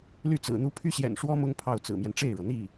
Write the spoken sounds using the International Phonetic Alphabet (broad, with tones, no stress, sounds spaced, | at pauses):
l y˥˩ t͡s ɹ̩˨˩ n̪ u˥ pʰ y˥ ɕ j ɛ̰˨˩ n ʂ w ɔ˥ m ʊ˥ ŋ pʰ ɑ˥˩ ʊ̯ t͡s ɹ̩˨˩ m j ɛ˦ n ʈ͡ʂ e˥˩ ɪ̯ ɻ ɤ˩ n̪ i˥˩